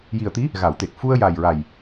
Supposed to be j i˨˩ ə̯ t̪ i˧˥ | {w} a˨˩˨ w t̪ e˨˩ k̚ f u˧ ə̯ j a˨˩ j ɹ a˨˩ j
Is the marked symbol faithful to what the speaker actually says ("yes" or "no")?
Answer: no